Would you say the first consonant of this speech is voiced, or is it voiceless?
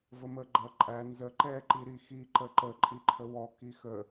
voiced